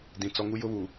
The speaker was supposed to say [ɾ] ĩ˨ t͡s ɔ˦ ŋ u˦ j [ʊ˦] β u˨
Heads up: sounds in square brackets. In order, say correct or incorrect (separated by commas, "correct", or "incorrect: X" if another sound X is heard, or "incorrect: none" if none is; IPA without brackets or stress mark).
incorrect: d, correct